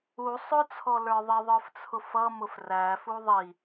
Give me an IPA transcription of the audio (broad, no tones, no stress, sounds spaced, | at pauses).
u sˤ ʊ t͡sʰ ɔ l ə˞ ðˤ ɪ ðˤ ə˞ f t͡sʰ ʊ f ʌ m ʊ f r æ f u ðˤ i